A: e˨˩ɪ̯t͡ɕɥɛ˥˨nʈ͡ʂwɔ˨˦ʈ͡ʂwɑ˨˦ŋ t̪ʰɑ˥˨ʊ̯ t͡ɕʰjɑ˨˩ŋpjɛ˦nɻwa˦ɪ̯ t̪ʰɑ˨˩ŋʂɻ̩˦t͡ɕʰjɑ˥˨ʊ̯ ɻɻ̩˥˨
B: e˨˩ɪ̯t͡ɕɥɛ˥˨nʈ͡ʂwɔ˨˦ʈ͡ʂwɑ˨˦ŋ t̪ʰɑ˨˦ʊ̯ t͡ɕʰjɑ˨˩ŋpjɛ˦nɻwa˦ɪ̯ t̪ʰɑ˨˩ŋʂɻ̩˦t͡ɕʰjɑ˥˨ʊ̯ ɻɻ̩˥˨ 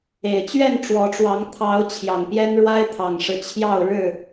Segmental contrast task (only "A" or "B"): B